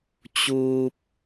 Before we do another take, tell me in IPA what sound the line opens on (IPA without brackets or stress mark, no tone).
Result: t͡ɕ